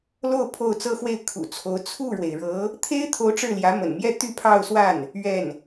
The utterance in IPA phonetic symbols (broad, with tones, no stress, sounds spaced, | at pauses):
l o˥˧ ʊ̯ pʰ o˥˩ ʊ̯ t͡s ɤ˥ x w e˥˩ ɪ̯ kʰ ṵ˨˩ t͡sʰ o˧˥ ʊ̯ t͡sʰ u˥˩ ɻ w e˩ ɪ̯ ɻ ɤ˧˥ | t̪ʰ e˥ ɪ̯ t̪ʰ o˧˥ ʊ̯ ʈ͡ʂ ɻ̩˥˩ l j ä˧˥ m ə̰˨˩ n m j ɛ˥˧ t̪ y˥˧ pʰ ɑ˥˧ ʊ̯ s w a˥˩ n | ɥ ɛ˥˩ n